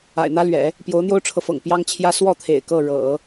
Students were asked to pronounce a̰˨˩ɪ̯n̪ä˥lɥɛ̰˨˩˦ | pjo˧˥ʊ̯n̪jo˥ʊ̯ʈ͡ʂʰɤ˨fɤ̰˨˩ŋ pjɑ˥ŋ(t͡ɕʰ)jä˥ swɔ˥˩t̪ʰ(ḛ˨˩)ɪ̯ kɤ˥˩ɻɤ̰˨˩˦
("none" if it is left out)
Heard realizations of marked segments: t͡ɕʰ, ḛ˨˩

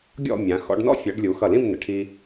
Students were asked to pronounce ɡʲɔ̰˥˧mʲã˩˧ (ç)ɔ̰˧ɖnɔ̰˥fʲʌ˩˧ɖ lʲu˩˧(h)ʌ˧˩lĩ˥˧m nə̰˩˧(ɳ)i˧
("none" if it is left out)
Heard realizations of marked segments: x, x, ʈʰ

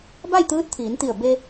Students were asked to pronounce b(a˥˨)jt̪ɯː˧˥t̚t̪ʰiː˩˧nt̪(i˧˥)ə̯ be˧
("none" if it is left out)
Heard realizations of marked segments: a˥˨, i˧˩

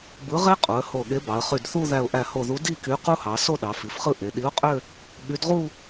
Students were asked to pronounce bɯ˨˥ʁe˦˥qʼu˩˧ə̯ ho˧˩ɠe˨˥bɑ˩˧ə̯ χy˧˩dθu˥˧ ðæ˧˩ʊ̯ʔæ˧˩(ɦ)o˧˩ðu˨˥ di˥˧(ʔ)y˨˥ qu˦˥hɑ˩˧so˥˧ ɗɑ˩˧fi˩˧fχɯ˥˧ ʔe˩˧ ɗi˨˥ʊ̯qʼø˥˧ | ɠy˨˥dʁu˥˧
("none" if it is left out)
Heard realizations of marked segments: h, k

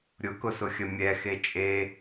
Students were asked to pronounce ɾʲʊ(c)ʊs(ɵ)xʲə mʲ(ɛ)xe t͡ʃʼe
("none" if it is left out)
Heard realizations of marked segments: k, ʊ, ɛ

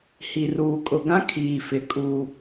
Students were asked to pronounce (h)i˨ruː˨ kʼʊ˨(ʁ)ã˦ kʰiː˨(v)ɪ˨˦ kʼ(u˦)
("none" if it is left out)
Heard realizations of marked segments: h, ɡ, f, u˨

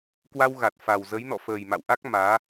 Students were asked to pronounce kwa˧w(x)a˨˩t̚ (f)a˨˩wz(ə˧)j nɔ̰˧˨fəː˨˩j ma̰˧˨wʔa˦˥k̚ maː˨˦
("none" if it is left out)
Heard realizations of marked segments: ɣ, f, ə˨˦

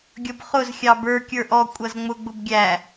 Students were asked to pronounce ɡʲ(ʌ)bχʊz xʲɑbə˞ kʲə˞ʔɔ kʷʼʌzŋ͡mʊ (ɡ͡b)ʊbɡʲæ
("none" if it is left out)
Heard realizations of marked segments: ʌ, ɡ͡b

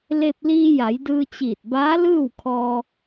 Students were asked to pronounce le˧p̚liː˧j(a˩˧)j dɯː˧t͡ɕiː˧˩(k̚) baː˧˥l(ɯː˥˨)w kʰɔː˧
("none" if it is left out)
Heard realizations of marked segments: a˩˧, t̚, ɯː˥˨

